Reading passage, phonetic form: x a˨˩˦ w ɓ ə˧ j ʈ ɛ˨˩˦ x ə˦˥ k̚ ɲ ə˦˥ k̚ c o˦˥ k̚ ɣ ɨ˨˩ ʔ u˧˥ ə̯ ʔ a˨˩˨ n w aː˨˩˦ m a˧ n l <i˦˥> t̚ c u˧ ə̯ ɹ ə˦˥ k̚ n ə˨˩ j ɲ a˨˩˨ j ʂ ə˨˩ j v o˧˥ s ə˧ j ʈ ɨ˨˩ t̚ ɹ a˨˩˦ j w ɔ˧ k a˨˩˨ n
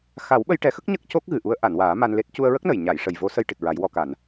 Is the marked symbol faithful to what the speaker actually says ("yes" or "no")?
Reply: no